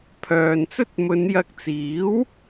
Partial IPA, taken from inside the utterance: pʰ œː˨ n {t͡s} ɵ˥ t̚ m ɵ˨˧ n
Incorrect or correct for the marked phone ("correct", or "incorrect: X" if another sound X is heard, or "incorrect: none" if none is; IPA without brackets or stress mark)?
correct